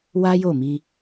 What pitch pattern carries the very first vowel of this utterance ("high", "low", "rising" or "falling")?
high